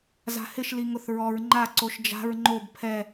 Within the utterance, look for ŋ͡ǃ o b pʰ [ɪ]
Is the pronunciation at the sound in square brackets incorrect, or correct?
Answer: incorrect